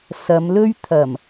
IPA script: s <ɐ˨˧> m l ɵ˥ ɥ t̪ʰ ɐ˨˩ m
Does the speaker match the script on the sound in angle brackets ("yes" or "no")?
yes